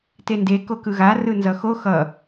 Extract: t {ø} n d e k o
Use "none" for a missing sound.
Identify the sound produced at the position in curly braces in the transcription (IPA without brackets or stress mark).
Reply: e